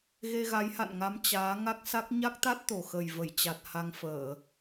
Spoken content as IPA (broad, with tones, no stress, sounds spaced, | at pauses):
ɣ e˧ ɣ a˨˦ j h a̰˧˨ n ŋ a˨˦ m t͡ɕ aː˨˦ ŋ a˦˥ k̚ s a˦˥ k̚ ɲ a˦˥ k̚ t̪ a˦˥ t̚ t̪ o˨˩ x ə˨˩ j v ə˧˩ j t͡ɕ a˨˩ t̚ h a˧ ŋ f əː˧˩˨